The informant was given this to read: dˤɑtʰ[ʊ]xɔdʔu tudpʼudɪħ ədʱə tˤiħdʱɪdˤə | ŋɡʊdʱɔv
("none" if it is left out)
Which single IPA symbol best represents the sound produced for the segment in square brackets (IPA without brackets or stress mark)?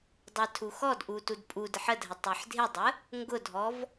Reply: u